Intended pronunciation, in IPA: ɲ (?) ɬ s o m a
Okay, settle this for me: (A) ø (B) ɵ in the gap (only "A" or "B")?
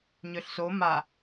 A